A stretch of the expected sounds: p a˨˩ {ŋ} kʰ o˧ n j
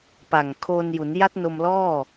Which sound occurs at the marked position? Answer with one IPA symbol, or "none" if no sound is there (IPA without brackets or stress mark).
ŋ